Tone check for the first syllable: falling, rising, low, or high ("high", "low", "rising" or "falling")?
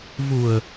low